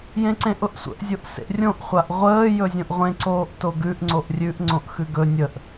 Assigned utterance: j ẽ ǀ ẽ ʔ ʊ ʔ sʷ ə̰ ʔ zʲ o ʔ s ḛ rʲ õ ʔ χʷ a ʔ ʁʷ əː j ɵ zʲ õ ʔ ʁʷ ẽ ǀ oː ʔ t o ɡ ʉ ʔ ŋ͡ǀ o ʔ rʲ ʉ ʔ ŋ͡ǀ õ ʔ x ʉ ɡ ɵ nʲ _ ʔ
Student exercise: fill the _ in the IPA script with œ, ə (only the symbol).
ə